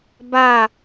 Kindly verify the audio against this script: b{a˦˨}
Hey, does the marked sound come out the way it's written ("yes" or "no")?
yes